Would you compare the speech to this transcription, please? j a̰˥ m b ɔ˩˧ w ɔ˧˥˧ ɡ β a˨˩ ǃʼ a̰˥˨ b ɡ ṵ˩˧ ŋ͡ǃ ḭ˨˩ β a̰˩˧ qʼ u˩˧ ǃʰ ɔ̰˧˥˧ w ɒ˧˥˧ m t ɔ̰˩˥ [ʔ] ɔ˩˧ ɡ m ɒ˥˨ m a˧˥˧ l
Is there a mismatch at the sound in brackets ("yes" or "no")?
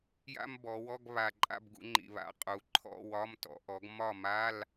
no